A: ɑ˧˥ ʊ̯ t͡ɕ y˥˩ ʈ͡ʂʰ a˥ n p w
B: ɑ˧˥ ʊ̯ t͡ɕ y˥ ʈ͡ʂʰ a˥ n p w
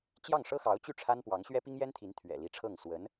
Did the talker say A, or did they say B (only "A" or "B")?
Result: A